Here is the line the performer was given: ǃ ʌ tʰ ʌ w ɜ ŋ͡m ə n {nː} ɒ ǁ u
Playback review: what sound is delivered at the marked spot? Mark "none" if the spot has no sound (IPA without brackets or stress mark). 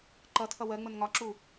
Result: ŋ